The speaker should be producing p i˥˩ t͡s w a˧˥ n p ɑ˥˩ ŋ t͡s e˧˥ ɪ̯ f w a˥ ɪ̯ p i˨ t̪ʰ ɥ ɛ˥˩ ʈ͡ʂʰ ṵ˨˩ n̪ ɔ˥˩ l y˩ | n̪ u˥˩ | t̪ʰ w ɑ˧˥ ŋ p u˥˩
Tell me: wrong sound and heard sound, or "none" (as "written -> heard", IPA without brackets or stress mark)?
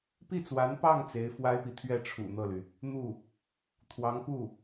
ɔ˥˩ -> ɤ˥˩